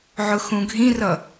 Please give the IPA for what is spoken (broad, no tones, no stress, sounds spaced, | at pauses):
ʕ ʊ x ũ ɡʱ ĩ r ʌ